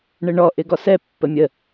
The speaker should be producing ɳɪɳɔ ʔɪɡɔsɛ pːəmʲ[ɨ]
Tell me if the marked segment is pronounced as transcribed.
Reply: no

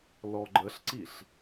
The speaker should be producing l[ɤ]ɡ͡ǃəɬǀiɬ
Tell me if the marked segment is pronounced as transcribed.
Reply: no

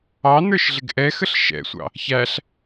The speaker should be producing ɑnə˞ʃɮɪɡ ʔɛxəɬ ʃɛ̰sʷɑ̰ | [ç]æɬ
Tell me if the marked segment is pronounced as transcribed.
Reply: yes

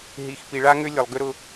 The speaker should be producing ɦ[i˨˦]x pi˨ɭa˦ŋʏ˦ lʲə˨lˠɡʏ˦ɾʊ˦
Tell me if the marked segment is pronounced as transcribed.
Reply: no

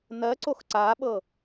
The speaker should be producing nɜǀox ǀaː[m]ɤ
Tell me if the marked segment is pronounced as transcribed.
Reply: no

